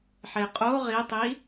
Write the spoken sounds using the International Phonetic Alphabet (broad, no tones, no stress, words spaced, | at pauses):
ħeqʼo ʁitˤi